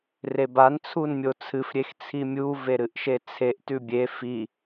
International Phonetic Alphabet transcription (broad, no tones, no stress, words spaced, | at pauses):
reban t͡sʰunmʲot͡sʰɨf ɾʲext͡sʰimʲu veɾɨʔʃet͡sʰeʔ tʉbʲe fi